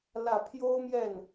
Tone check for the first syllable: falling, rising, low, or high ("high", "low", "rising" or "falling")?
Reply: low